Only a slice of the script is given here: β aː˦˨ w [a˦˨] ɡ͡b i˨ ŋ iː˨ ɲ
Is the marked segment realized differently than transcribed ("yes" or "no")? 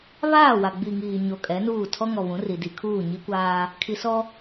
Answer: yes